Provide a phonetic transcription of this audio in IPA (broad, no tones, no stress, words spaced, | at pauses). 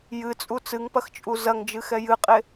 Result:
jɨt͡sʼu t͡sɨŋpɐxt͡ʃʼu zɐŋd͡ʒɨxɛ jɨqʼe